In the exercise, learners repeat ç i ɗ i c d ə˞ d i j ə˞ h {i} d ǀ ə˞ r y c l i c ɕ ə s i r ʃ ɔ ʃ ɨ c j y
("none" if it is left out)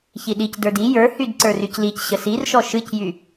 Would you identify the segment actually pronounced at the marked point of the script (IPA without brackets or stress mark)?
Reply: y